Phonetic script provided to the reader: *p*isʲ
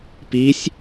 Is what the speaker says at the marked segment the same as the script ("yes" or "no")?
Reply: yes